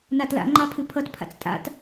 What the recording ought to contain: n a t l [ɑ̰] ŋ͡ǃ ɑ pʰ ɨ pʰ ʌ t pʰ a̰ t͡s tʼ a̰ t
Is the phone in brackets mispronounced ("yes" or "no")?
yes